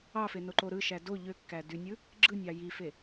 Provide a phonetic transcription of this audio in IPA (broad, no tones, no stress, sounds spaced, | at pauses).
ɑ f e n o ǃ o ɾ ɯ ʃ æ d o ʎ ø kː æ d y nʲ ɯ | ɡ͡ǁ ɯ nʲ ɑ j i f e